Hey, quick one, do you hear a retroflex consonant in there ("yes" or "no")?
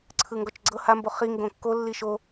no